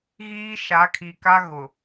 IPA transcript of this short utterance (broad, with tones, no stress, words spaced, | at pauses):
ɣiː˦ʃa˨˦kʰi˨ka˦ ɣʊ˨